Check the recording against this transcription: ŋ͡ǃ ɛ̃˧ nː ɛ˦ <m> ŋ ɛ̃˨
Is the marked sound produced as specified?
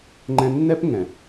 no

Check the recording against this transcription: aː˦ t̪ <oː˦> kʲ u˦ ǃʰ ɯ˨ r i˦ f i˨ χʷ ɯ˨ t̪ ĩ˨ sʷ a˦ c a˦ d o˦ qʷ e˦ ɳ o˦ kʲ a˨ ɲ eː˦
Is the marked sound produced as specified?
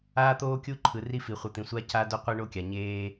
yes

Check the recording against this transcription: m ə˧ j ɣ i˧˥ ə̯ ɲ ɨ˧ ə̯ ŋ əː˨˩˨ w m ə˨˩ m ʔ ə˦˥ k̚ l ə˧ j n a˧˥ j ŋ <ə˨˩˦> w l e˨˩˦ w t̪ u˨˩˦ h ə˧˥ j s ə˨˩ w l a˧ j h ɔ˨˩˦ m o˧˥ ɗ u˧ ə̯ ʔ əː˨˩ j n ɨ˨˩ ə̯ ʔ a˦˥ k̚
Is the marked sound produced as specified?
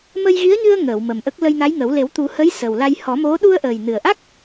yes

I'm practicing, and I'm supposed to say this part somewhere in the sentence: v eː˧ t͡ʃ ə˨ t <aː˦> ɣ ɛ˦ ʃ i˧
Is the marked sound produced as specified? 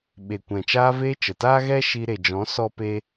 yes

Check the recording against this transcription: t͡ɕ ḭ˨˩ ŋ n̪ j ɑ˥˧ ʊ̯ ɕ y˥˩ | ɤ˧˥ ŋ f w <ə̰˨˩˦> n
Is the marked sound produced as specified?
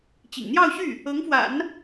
no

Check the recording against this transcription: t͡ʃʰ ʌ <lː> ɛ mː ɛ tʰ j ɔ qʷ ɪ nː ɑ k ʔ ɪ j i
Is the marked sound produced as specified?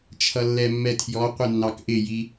yes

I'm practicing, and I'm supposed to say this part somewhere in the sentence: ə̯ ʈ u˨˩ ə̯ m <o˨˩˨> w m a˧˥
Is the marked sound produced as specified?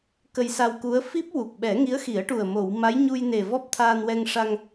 yes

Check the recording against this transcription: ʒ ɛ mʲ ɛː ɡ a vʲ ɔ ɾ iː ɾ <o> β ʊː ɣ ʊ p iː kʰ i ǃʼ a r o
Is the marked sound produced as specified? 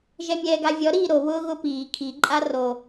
yes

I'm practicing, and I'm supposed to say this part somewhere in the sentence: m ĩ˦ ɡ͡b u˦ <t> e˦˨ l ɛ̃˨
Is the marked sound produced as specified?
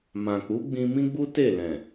yes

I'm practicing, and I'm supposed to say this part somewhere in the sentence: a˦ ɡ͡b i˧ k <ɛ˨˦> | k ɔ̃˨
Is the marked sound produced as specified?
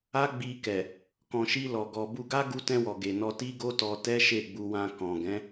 no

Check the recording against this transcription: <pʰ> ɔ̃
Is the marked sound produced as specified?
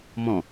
no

